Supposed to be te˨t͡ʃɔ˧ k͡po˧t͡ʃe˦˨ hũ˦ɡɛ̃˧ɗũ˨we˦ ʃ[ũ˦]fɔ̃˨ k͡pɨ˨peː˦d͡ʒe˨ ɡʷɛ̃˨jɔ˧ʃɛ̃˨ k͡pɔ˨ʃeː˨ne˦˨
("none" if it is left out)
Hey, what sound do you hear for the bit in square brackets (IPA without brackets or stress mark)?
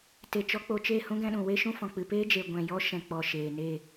ũ˦